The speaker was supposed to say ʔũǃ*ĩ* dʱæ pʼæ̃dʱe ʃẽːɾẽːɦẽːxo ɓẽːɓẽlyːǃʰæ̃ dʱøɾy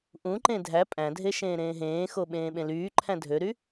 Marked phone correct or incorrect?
incorrect: ẽ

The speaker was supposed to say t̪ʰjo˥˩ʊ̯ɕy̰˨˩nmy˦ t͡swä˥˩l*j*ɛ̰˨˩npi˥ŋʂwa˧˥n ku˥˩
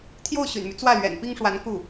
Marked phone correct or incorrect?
incorrect: ɥ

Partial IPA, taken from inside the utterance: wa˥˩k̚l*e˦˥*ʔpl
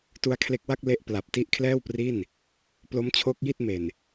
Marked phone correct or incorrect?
correct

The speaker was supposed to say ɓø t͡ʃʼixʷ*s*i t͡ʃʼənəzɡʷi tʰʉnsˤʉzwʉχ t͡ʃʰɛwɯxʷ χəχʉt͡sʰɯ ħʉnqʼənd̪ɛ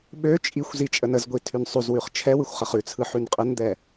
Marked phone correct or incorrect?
incorrect: z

